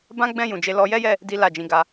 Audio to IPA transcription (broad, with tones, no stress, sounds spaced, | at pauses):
b ã˦ ɡ͡b ɛ̃˦˨ j ũ˨ d͡ʒ e˧ l ɔ˧ j ɛ˦ j ɛ˦˨ | d i˦ l a˦˨ d͡ʒ ĩ˧ ɡ a˧